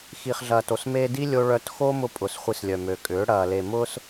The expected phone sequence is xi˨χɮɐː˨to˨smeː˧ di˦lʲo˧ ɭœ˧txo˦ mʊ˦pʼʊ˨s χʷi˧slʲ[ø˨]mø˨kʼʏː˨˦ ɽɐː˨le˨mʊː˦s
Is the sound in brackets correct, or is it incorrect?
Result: incorrect: œ˨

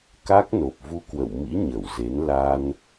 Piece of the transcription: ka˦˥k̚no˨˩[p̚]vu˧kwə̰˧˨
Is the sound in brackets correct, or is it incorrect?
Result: correct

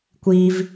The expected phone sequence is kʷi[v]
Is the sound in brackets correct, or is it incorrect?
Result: correct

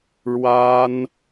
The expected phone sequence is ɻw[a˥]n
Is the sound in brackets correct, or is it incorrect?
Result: correct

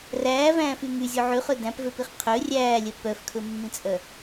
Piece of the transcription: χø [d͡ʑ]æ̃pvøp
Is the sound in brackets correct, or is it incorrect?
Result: incorrect: d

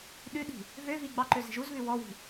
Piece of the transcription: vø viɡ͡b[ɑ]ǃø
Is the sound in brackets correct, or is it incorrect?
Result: correct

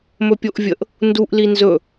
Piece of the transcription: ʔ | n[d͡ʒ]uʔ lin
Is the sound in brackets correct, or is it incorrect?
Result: incorrect: d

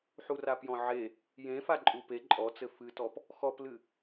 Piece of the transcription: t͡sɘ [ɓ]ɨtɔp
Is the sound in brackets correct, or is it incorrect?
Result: incorrect: f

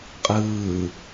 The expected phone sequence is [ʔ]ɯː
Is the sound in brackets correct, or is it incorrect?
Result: incorrect: qʼ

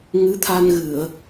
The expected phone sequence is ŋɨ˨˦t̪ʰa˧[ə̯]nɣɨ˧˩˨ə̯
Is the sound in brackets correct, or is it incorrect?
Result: incorrect: none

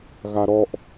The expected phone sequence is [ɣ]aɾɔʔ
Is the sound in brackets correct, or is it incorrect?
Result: correct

